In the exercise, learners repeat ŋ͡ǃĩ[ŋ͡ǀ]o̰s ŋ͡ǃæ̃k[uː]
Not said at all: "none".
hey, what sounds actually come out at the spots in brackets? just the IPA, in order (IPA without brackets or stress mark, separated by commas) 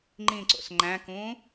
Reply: ǀ, ũː